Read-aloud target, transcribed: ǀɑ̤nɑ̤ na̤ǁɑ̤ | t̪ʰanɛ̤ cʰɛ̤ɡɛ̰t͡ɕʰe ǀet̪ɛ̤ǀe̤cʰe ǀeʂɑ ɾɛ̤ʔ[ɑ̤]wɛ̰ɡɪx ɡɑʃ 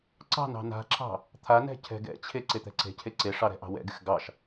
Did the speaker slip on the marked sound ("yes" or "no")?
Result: no